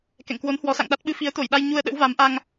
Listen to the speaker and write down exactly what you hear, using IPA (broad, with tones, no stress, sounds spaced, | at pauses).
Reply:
k ɛ̰˧˨ ŋ k w o˨˦ n h w ɔ˨˦ s a̰˧˨ ŋ ɗ a˦˥ t̚ ɓ ɨ˧ f i˨˦ ə̯ t̪ o˧˩ j ɗ a˧ j ɲ u˧ ə̯ ɗ ə̰˧˥ w v a˨˦ m ʔ a˧ ŋ